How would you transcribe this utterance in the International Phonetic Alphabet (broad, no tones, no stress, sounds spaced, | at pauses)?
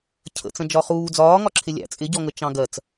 cʰ ə̰ t͡s ə̃ d͡ʒ ɒ χ uː d͡z ɒː ŋ ɒ ǁʰ ɪ lʲ æ̰ t͡sʼ ɪ ɟ ɔ ŋ ə t͡ʃ ɑ̃ ɡ ɜ t͡s